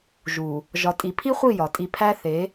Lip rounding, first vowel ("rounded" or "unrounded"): rounded